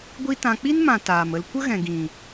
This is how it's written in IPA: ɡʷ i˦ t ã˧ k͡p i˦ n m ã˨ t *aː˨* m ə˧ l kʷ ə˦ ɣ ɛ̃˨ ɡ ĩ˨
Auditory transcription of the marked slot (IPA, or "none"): aː˨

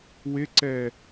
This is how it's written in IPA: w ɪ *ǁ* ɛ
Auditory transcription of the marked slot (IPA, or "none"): ǀ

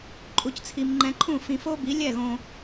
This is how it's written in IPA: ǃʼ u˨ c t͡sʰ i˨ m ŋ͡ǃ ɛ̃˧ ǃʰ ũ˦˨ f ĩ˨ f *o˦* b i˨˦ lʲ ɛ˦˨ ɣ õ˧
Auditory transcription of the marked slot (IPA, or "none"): o˦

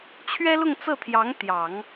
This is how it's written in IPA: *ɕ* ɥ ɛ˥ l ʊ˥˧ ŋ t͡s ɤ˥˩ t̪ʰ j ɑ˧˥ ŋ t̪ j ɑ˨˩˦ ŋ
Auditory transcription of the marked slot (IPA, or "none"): t͡ɕʰ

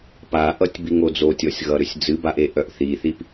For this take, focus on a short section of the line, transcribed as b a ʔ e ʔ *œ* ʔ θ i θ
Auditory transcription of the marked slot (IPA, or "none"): œ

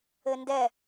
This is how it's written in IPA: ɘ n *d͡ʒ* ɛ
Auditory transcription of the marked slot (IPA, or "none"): d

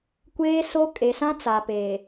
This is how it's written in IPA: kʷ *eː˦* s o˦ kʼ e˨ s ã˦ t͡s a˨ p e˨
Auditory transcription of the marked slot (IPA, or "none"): eː˦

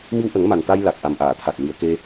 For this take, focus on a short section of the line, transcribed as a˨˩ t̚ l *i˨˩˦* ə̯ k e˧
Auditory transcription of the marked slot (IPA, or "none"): i˨˩˨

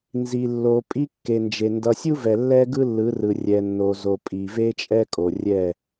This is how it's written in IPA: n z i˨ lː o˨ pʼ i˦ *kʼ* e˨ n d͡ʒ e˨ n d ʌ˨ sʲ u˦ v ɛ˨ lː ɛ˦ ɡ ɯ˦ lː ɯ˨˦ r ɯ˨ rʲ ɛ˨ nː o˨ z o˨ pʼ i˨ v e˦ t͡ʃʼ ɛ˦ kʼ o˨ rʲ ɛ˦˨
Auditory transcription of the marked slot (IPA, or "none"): kː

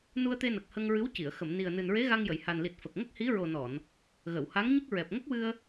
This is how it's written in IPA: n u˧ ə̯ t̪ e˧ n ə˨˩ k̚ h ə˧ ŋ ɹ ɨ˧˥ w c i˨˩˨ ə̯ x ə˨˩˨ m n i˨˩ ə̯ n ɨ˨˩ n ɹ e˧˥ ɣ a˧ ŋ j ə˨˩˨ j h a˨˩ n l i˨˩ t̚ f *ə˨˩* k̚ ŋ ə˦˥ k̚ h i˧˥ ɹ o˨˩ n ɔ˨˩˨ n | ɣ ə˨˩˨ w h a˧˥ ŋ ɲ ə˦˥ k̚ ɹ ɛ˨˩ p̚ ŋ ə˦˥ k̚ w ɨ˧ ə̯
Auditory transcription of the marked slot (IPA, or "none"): ə˨˩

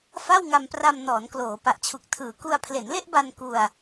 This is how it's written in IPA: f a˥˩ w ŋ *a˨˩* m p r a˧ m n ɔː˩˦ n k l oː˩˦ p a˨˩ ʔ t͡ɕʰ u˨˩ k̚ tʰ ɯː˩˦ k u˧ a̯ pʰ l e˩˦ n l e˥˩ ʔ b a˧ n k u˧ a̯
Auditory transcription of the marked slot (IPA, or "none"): a˧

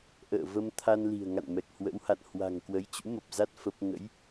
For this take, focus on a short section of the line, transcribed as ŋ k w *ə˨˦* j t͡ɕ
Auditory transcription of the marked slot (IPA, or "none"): ə˨˦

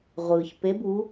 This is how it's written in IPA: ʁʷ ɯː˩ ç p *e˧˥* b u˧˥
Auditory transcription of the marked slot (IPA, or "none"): e˧˥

